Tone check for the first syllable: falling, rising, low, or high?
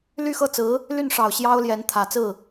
falling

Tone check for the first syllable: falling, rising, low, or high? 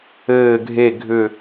low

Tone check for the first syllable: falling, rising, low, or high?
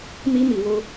high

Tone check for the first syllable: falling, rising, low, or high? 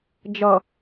low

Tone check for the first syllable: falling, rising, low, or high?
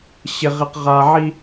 low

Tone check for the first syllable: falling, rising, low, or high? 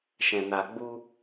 low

